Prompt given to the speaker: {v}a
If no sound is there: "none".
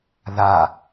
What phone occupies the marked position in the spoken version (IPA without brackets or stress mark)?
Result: ð